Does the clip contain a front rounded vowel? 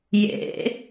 no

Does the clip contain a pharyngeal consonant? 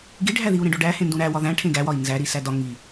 no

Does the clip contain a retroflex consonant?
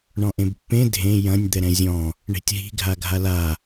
yes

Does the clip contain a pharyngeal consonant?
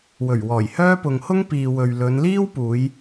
no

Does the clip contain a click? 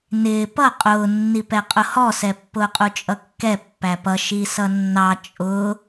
no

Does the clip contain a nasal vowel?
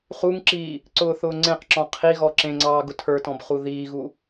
yes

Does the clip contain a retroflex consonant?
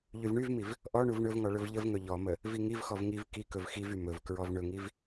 yes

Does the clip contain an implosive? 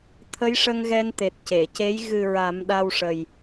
yes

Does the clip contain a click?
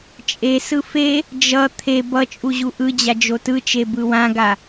no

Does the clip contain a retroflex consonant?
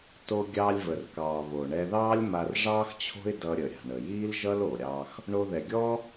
yes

